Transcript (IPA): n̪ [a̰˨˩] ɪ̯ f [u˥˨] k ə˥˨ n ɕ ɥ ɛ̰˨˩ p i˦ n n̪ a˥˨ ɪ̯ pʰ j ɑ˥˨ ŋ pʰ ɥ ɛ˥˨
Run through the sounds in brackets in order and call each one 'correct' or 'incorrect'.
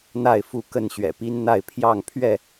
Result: incorrect, correct

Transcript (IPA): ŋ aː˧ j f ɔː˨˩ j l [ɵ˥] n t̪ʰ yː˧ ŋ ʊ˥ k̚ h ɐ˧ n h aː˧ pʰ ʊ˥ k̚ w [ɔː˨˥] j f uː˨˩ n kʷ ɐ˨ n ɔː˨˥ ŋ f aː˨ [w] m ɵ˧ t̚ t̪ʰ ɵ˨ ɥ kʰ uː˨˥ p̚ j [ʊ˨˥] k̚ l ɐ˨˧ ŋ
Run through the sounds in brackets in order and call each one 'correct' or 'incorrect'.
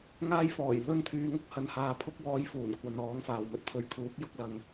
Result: correct, incorrect, correct, correct

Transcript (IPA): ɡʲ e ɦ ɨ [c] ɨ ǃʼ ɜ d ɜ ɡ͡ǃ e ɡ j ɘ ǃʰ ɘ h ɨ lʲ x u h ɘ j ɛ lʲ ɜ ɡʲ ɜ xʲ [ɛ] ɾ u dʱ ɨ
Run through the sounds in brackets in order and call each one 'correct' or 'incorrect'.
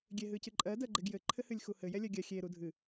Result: correct, incorrect

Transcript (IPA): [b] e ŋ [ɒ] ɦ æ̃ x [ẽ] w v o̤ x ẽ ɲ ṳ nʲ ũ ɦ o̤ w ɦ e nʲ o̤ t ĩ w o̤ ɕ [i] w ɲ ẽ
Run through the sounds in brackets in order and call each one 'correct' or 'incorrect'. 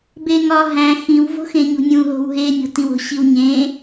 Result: correct, correct, incorrect, correct

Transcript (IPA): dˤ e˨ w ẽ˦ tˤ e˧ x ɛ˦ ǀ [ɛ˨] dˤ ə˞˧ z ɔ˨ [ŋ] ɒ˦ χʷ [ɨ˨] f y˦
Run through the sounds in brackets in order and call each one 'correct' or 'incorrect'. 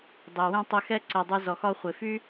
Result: correct, incorrect, incorrect

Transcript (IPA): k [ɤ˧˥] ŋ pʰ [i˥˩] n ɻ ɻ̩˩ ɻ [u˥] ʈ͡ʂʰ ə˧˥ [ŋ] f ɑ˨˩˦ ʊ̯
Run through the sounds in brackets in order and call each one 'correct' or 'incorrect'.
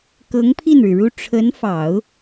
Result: correct, correct, correct, incorrect

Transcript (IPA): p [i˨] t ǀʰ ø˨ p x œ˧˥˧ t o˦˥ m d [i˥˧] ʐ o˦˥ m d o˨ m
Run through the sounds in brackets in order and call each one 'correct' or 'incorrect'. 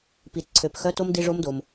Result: correct, incorrect

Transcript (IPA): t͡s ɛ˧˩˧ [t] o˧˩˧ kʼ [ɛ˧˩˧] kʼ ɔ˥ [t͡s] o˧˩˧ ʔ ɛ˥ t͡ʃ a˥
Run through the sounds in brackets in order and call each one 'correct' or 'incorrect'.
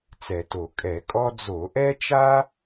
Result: correct, correct, incorrect

